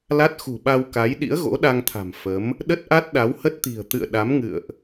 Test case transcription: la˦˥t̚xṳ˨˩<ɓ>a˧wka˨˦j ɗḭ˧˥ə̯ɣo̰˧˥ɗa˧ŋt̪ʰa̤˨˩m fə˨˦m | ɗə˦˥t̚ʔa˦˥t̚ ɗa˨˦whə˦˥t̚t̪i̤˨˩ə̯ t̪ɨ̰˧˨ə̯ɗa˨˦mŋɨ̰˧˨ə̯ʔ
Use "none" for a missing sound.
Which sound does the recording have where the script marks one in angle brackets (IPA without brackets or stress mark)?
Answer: ɓ